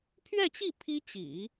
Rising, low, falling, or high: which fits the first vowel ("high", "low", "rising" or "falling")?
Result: falling